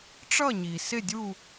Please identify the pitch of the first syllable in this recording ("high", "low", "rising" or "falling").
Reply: falling